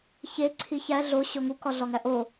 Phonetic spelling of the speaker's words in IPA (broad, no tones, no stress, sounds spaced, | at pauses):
ç e ǀʰ i ç æ ɮ o ɕ o ŋ u k ɒ ɮ ɒ ŋ æ ʔ o